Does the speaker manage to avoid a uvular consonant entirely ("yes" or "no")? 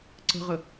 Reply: no